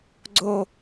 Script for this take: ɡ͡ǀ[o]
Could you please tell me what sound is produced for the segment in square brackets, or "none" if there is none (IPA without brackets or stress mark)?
o